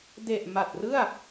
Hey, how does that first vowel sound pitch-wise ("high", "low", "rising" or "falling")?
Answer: low